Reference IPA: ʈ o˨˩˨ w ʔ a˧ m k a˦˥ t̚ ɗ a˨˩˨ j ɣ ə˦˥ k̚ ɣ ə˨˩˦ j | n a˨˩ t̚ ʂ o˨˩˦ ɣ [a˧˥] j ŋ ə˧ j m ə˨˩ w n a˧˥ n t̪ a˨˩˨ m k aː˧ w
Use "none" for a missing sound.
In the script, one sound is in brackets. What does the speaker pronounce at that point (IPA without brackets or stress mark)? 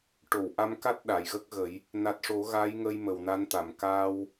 a˧˥